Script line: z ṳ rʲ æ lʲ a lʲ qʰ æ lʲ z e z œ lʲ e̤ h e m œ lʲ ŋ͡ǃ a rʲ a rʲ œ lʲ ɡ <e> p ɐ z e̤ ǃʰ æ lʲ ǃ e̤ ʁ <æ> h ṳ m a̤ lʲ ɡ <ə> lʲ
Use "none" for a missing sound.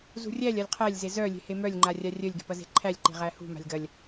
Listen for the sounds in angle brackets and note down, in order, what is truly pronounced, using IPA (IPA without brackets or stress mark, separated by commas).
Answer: e̤, æ, ɐ